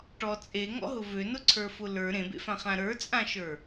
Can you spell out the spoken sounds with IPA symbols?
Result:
ʈ ɔ t͡sʼ e ŋ ɔ̰ ɦ ʊ v ø n ʊ ǀʰ ə˞ f ʊ l ə˞ ɾ ẽ b ḛ f ã χ ã ɾ ə˞ t͡sʼ ã ʃ ə˞

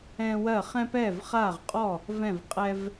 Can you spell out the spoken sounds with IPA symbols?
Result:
ɛ̃ː˦ w ɜ˥˩ χ ɛ̃˦ p ɛː˥˩ v χ aː˥˩ ʁ qʼ ɔ˥˩ | v ɛ̃˥˩ v qʼ ɛ˦ v

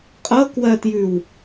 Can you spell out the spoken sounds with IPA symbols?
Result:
qʼ ɤ k w ɜ t j ʉ w

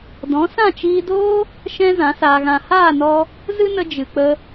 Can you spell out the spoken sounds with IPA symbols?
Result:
d ɔ̃˨˦ s ã˦˨ t͡ʃ iː˧ d oː˦ | ʃ ɛ̃˦ z ã˨˦ s aː˧ ɣ ã˧ h aː˦˨ n ɔ˧ | z ɨ˦ n ə˧ d͡ʒ ɨ˨ k͡p ə˧

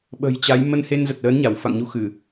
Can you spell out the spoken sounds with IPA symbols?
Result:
ɓ ə̤˨˩ j t͡ɕ a˨˦ j m ə˧ n h e˧ n z ə˨˩ t̚ l əː˨˦ n ɲ a˧˩ w f a̰˧˨ ŋ ɲ u˧ x ɨ˧˩˨

